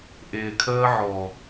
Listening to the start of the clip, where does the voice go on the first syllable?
low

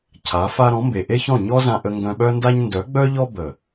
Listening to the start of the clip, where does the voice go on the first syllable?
rising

